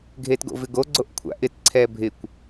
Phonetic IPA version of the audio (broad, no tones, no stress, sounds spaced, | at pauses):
ɡʱ e t ɡ o̰ v ɪ ɡ o ɡ͡ǀ o ʔ kʷʰ a̰ ʔ ɪ t ǀʰ ɛ bʱ ɪ kʷ